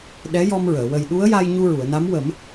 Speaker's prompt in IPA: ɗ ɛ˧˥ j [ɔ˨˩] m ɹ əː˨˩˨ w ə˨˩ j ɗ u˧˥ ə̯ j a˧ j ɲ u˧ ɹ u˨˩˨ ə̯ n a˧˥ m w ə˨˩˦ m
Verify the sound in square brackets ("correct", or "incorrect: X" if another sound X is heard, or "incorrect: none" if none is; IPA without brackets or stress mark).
incorrect: ɔ˧